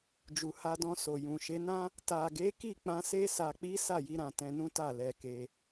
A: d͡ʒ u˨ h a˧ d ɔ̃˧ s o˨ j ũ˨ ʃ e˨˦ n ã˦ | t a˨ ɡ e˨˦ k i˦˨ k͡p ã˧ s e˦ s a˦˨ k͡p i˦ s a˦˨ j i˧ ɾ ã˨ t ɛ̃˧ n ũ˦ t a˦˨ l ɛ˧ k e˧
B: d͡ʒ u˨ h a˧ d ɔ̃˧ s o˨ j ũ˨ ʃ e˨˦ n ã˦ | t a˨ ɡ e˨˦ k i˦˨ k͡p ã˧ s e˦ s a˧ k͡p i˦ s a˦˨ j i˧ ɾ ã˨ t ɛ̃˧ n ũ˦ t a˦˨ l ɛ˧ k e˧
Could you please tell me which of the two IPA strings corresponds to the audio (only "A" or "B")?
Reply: B